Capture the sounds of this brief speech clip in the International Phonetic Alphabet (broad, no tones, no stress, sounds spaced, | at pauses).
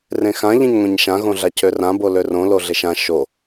r ẽ x ã ʎ ẽ ɲ ŋʷ ẽ ɲ ʃ ã ɣ õ ɮ a cʰ ø r ã b o l ø r õ l o ɮ e ʃ ã ʃ o